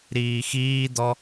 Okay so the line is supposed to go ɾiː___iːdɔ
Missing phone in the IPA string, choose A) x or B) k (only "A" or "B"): A